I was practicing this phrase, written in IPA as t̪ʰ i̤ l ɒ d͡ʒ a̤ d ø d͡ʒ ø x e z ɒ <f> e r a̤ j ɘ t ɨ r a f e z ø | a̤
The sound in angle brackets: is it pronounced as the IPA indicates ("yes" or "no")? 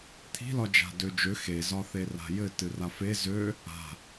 no